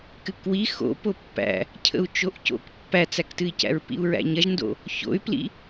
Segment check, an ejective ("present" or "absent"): absent